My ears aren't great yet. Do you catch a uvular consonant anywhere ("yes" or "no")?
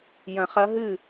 yes